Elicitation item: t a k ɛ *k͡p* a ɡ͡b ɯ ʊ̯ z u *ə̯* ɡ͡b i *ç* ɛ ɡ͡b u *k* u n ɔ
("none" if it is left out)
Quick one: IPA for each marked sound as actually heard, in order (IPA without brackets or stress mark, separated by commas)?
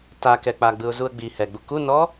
k͡p, ə̯, h, k